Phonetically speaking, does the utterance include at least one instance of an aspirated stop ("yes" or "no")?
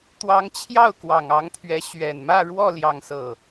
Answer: yes